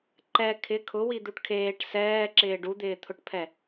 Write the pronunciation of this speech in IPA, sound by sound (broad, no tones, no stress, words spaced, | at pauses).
ǃɛ kʰɪ kʰʊwid̪uʈ kʰeːʈ sɛːǁɪː ɖud̪ɪːt̪ʰʊʈpʰɛ